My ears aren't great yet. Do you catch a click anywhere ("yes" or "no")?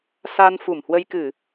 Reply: no